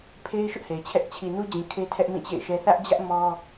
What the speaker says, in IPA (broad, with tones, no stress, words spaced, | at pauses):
pʰe˦ɪ̯ ʃʊ˦ʔhe˨ɪ̯t͡ɕʰɛ˦ʔ t͡ɕʰi˨nu˦d͡ʑĩ˨ kʰe˦tʰɛ˦ʔ mĩ˦˨t͡ɕḛ˦˨ɪ̯ʃɛ˦ θä˦ʔd͡ʑä˦ʔ mɔ˦